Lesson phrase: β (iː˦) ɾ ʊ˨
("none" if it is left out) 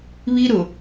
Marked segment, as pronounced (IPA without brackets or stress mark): i˦